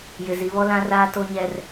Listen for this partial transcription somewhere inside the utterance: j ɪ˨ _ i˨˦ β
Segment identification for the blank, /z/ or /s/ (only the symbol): z